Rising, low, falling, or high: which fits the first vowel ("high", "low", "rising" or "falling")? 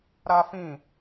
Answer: high